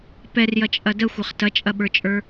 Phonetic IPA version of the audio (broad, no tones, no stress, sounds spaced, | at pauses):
p ɛ r j ɐ t͡ʃʼ ɐ d ə xʷ ɐ χ t ɐ t͡ʃʼ ɐ ɓ ə˞ t͡ʃʼ ə˞